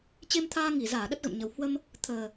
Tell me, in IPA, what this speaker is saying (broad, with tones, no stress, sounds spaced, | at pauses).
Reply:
t͡ɕ e˧ m t̪ʰ aː˧ ŋ i˧˩ z aː˧˩ ɗ ə˦˥ t̚ ɣ ə̰˧˨ m ɲ ə˨˩ w h w ə˧ m | t̪ʰ əː˨˩